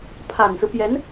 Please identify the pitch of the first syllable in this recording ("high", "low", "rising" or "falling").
low